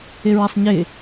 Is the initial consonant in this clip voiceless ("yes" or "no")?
no